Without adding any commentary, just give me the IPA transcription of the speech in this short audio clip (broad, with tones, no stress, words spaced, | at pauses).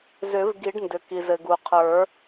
zʏ˨˩˦v ɡi˨˩˦ɖndʏ˩ ki˩zɘ˩ɡu˩ qʰə˞˨˩˦